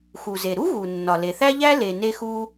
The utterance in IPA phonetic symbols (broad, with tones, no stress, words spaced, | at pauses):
xu˩ze˩ ɾu˥ɣu˩nːɒ˩ le˩θæ˥ʎæ˥ le˩ne˧xu˧